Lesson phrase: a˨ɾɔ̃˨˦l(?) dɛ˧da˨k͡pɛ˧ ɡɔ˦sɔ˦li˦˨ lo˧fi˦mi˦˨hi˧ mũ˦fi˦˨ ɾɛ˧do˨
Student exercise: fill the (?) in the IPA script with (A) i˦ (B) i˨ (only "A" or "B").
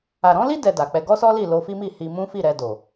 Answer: A